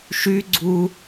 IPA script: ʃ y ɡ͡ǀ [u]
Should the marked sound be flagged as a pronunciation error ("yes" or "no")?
no